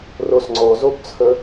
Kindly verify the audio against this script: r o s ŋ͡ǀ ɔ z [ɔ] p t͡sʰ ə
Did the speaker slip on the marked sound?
yes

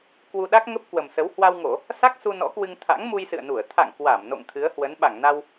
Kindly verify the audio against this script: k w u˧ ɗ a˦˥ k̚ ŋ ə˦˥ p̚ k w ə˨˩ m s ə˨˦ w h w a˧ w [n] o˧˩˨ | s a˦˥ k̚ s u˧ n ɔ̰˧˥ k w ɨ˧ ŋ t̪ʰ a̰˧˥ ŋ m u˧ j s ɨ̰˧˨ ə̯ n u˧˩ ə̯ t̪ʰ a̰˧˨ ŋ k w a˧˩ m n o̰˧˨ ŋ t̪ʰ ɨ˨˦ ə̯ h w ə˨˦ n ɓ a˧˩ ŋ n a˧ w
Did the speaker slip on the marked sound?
yes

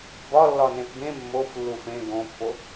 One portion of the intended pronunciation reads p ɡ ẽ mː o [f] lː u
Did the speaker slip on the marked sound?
no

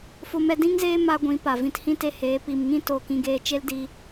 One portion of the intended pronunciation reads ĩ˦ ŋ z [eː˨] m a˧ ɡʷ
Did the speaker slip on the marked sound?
yes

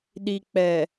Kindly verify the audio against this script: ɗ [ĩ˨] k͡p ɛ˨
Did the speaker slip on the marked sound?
yes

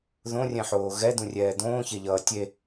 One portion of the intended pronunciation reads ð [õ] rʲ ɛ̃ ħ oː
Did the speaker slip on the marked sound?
no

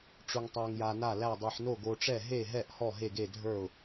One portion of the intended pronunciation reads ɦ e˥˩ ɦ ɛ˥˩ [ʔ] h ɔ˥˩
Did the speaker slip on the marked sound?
no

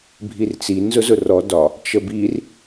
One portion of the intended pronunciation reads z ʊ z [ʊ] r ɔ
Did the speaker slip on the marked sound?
no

